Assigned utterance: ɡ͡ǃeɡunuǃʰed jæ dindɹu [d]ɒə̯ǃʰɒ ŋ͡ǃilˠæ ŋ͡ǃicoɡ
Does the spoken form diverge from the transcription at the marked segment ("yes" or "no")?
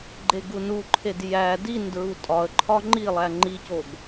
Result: yes